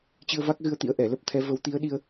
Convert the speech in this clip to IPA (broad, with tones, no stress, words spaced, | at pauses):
t͡ɕɨ˧ə̯va˦˥k̚ɣɨ˧ə̯t̪ḭ˧˥ə̯ ʔɛ˧˩lə˦˥p̚t̪ʰɛ˨˦ və˨˦wt̪i˨˦ə̯ɗi˧ə̯